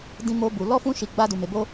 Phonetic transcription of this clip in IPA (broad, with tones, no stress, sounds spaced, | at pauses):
d ĩ˦ m o˦ b u˧ l ɔ˦ f ũ˦ ʃ i˧ ɡ͡b a˦ d u˧ m e˧ b o˦